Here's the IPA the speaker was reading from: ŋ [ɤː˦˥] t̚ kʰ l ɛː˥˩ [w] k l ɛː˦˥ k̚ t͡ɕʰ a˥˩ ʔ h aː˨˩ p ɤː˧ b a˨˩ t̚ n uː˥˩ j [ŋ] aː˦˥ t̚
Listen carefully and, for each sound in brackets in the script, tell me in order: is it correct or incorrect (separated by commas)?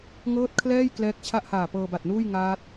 correct, incorrect, correct